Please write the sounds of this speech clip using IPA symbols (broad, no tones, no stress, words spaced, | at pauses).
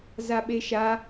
zaɓeʃa